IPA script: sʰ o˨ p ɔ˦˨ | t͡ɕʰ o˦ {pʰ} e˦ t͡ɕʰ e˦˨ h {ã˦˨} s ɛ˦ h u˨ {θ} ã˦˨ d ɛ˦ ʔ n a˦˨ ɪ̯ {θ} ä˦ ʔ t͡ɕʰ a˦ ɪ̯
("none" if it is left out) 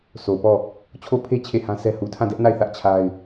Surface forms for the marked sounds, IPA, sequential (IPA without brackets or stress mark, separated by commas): pʰ, ã˦, tʰ, θ